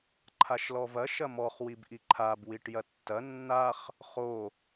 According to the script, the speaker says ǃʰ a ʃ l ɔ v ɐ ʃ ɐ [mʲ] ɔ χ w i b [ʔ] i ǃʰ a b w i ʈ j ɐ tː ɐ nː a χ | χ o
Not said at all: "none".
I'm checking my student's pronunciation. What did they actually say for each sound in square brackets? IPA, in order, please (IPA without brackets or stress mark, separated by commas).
m, ʔ